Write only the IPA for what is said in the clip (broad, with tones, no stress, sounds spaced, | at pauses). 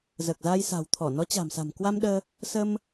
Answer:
z əː˨˩ k̚ z aː˧ j s a̤˨˩ w t̪ʰ ɔ˧˩ n ɔ˨˦ t͡ɕ a̤˨˩ m s a̤˨˩ m k w a˧ m ɗ əː˧ | s ə˧ m